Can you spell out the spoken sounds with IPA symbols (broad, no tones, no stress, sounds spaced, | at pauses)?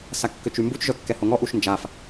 s a kː ø t͡ʃ y m b u t͡ʃ ʒ œ kː ɛ h o ŋ ɔ ʔ u ʃ n d͡ʒ a f